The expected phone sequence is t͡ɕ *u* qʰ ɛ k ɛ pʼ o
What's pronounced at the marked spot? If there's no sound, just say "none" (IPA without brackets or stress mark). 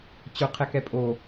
ʊ